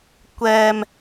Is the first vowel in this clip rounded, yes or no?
no